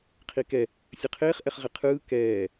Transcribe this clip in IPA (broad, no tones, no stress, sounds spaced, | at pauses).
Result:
qʰ i k ɛ | sʲ ɯ qʰ eː χ ʔ ɛ χ ʁ e qʰ ɯː k ɛː